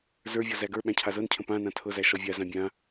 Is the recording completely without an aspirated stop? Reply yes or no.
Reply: no